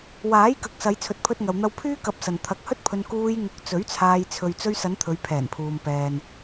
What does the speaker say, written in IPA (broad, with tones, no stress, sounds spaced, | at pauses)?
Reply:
w aː˨˥ j k ɐ˨ k̚ s ɐ˨˧ j t͡sʰ ɵ˨ t̚ pʰ ɵ˧ t̚ ŋ ɐ˨ w n̪ ɐ˧ w pʰ yː˥ k ɐ˨˥ p̚ s ɐ˨ n t̪ʰ ɐ˨˥ k̚ h ɵ˥ t̚ pʰ ɵ˧ n k uː˧ j ŋ ʊ˨˥ k̚ t͡s ɵ˨˥ ɥ t͡sʰ aː˧ j t͡sʰ ɵ˨ ɥ t͡s ɵ˧ ɥ s ɐ˨˧ n t̪ʰ ɵ˨˧ ɥ pʰ ɛː˨˩ n pʰ uː˨ m p ɛː˨ n